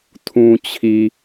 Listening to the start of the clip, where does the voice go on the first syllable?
low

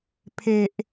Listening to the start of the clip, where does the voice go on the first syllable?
low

